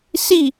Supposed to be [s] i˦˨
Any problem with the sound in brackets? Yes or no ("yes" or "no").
no